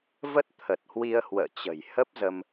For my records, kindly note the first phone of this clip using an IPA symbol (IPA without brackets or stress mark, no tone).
v